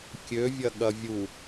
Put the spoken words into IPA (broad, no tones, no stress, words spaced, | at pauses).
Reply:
kʲøvʲɐ ɠɐvʲu